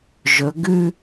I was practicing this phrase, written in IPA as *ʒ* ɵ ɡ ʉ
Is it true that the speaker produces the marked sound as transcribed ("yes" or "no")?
yes